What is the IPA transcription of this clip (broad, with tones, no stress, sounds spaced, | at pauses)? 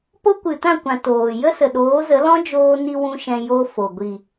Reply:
p o˦ kʷ ɨ˨ t ã˦˨ kʷ ã˨ t oː˨ j ə˦ s ə˨ ɗ oː˨˦ z ə˨˦ l ɔ̃˦ d͡ʒ oː˧ n i˧ w ũ˦ ʃ ɛ̃˧ j o˦ f o˨ ɡʷ i˨